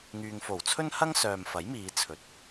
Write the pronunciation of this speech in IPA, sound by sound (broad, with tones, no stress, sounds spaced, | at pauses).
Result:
ŋ yː˨ ŋ f o˨˩ w t͡sʰ ɵ˥ n h ɐ˥ ŋ s œː˨ m f ɐ˨˥ j m iː˨˧ t͡sʰ ɵ˨˥ t̚